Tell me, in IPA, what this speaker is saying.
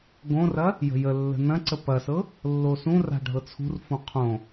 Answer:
ɡ õ r ɐ | j ə̤ j ə lː ə̤ n ɐ̃ ǀ ə p ɐ s ɤ | lː o s ũ r a̤ ɖʱ ɤ t͡sʰ ṳ r f õ qʰ õ

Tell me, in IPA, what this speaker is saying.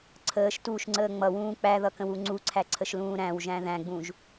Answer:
ǀʰ əː ʃ t uː ʃ ŋ͡ǀ əː ŋ͡m ʌ w ũː k͡p æ ð ʌ k ə̃ w u ŋ͡ǀ u ǀʰ æ ǀʰ ə ʃ l ũː ɾ æ̃ w ʒ æ̃ ð æ̃ ɡ͡b ũ ʒ

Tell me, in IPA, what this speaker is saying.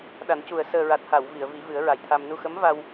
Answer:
ɗ a˨˩˦ n c u˨˩ ə̯ s əː˨˩ ɹ a˨˩ t̚ h a˨˩˨ w v i˨˩˨ ə̯ v i˨˩˦ v ɨ˨˩˦ ə̯ ɹ a˨˩ j t̪ʰ a˧ m n u˧ x ə˧˥ m v a˧ w

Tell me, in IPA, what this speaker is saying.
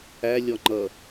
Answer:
æ lʲ ɔ ŋ͡ǃ ʌ

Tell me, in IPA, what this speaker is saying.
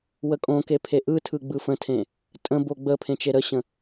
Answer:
w ə kʼ õ k e pʰ e ʔ ɯ tʰ ɯ ɡ͡b ɯ f ə̃ tʰ ẽ | tʼ ə̃ b o ɡ͡b ə pʰ ẽ t͡ʃ e ɾ ə ɕ ə̃

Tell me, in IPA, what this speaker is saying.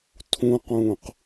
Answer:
tʰ ũ q ũː q

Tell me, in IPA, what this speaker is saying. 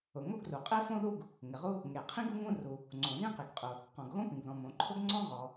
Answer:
ʊ˩ ŋ o˥ ɡ r u˩ qʼ e˥ f õ˥ ð u˥ ɡ | ŋ ɪ˩ ʁ u˥ | ŋ e˩ qʰ ĩ˥ ɡ u˥ ŋ ũ˥ r u˩ | ŋ͡ǀ õ˩ z ĩ˥ q i˩ ɡ qʼ ʊ˩ | q ɔ̃˩ ɡ ɣ õ˥ p ĩ˩ ɡ ð ɔ̃˩ m õ˩ ǃʰ ʊ˥ ɡ ŋ͡ǀ ɔ̃˥ ʁ ɔ˩

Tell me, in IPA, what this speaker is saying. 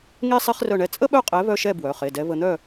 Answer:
ŋ e˥ sˤ e˥ χ r œ˥˨ ɳ ɛ˥˨ t͡sʼ ə˥ ɓ œ˥˨ qʼ ɛ˨˥ β œ˥˨ ʃ ɛ˥˨ b w œ˩˧˩ χ e˩˧˩ d ɛ˨˥ β ə˧ n̪ œ˥˨

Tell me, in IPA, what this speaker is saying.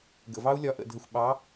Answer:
ɡ ə̰˩ v ɑ˦˥ u̯ lʲ ɒ˨˥ ʔ ə̰˧˩ dʱ ə˧˩ xʷ ɓ ɑ˨˥

